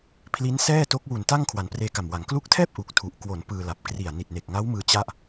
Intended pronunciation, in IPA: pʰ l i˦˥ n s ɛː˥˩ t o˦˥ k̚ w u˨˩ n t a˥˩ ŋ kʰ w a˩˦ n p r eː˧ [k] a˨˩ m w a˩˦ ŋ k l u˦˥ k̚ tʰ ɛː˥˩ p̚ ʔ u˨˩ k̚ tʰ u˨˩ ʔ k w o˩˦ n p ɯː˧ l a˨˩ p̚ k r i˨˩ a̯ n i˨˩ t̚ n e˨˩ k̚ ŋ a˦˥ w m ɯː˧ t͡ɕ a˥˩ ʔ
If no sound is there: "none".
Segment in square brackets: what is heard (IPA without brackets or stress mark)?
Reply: k